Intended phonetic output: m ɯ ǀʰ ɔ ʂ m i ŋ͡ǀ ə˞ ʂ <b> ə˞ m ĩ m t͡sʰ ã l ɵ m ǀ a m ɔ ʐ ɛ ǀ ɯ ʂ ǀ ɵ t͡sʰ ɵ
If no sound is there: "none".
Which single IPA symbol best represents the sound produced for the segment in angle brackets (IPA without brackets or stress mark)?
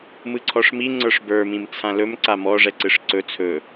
b